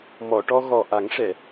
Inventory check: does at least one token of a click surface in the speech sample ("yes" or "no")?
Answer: no